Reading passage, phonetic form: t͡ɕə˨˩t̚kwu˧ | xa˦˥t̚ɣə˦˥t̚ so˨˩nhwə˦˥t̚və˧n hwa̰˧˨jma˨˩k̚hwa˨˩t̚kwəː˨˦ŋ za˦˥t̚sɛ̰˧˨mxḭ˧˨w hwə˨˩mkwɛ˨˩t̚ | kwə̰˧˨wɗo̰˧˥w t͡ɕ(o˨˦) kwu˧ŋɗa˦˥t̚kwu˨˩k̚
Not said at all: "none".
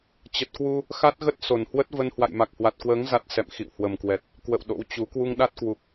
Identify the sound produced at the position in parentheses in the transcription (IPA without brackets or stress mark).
u˨˦